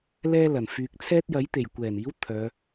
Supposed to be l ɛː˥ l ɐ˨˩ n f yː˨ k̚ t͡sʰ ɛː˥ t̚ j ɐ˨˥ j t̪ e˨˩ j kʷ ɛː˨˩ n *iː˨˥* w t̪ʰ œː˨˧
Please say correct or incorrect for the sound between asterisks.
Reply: correct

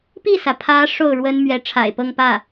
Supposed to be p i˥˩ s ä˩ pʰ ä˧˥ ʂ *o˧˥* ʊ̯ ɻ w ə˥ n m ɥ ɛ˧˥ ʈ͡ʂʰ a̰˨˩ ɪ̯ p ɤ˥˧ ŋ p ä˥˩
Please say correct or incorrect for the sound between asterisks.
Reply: incorrect: o˥˩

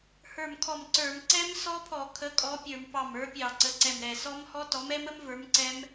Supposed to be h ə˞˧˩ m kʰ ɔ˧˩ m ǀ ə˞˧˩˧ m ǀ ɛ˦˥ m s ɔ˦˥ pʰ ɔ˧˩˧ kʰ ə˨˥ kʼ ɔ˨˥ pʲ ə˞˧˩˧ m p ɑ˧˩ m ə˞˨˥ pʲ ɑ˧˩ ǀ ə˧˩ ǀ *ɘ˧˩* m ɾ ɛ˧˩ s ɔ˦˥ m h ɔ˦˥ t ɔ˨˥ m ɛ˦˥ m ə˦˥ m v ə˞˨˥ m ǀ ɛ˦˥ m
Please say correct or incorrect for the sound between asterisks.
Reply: incorrect: ɛ˧˩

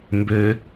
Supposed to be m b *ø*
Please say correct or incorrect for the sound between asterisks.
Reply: correct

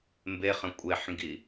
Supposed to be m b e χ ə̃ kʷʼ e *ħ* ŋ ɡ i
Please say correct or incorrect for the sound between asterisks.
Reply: correct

